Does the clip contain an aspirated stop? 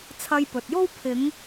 yes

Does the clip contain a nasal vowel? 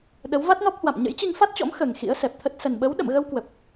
no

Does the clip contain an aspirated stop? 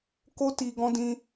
no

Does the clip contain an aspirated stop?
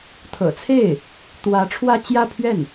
yes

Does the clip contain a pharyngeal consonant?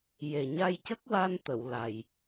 no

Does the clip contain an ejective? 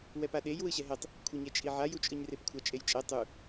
yes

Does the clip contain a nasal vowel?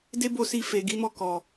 no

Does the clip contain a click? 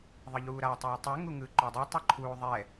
yes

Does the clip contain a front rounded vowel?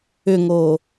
yes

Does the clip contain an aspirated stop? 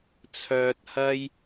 yes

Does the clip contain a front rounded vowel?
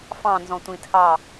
no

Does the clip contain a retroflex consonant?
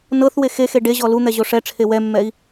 yes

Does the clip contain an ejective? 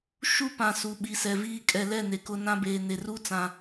yes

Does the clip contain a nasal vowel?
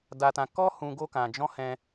yes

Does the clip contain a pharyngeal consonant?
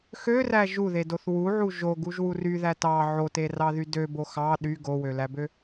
yes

